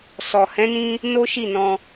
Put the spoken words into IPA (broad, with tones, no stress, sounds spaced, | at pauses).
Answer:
s ɔ˨ h ɛ̃˨˦ n ĩ˧ | n o˦ ʃ i˦˨ n ɔ̃˧